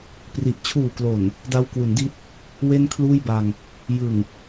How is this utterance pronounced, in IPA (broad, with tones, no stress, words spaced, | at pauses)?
pri˨˩ʔ t͡ɕʰuː˨˩klo˨˩n | da˧wkwu˩˦ndi˦˥t̚ | we˥˩nkʰluː˥˩jba˧ŋ | jɯ˨˩ŋ